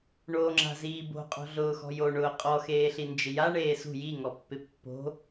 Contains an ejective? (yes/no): yes